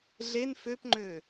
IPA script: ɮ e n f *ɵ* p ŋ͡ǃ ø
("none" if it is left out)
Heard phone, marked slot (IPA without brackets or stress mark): ø